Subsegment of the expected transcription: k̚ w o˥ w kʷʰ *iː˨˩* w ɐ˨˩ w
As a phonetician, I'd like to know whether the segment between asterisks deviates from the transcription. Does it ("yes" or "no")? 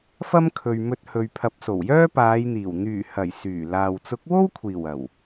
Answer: no